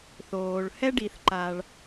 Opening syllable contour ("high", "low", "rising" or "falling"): low